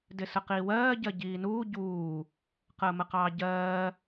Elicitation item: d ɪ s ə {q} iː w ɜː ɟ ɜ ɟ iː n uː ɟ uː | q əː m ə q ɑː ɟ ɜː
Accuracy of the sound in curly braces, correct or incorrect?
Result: correct